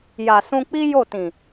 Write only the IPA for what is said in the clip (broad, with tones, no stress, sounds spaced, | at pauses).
j a˨ s ũ˧ k͡p i˦ j o˦˨ t ĩ˨